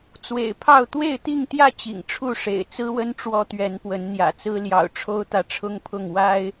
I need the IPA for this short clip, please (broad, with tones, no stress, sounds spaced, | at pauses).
t͡s w ḛ˨˩ ɪ̯ pʰ ɑ˥˨ ʊ̯ t̪ w e˥˨ ɪ̯ t̪ i˥˨ ŋ t̪ j ä˥˨ t͡ɕ ḭ˨˩ ŋ ʈ͡ʂʰ u˥˨ ʂ ḛ˨˩ ɪ̯ t͡s ɹ̩˦ w ə˦ n ʈ͡ʂ w ɔ˦ t̪ ɥ ɛ˨˦ n p w ə˨˦ n n̪ j ä̰˨˩ t͡s ɹ̩˦ l j ɑ̰˨˩ ʊ̯ ʈ͡ʂʰ o˦ ʊ̯ t̪ ä˨ ʈ͡ʂʰ ʊ˦ ŋ pʰ ʊ˥˨ ŋ w a˦ ɪ̯